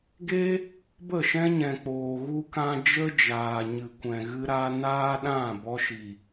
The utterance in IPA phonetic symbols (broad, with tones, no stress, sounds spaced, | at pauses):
ɡ e˦ | b ə˦˨ ʃ ɛ̃˦ ɲ ɛ̃˨ k͡p oː˨ ɣ u˧ k ã˧ d͡ʒ ə˦ d͡ʒ aː˨ ɲ ɨ˨ kʷ ɛ̃˨ ɣ ɨ˧ ɾ a˧ n aː˦ ɗ ã˦˨ b ɔ˧ ʃ i˨